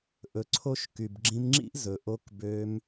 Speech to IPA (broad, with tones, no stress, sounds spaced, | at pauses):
ʔ ɵ˧ ǀʰ o˦ ʃ k y˨ b ɡ͡ǁ ĩ˧ m ŋ͡ǁ ḭ˦ ʔ z ɵ˨ ʔ o˧ k b ø˧ m